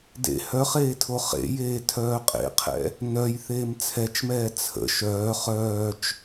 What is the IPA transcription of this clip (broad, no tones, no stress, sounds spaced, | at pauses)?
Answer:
d ḛ h œ χ eː tʰ o χ ḛ j eː tʰ œː qʼ ḛ qʰ ɛ̰ | n œ j θ eː m t͡sʰ ɛ t͡ʃ m ɛː t͡sʰ ə̰ ʃ œː χ œː t͡ʃ